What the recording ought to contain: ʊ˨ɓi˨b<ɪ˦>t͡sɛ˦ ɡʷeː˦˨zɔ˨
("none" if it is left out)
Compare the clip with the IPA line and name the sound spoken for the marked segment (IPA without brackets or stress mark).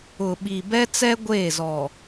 ɛ˦